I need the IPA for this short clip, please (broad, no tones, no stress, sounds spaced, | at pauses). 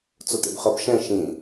t͡s o t ḛ b χ ɤ b ʃ ɛ̃ ʃ ĩ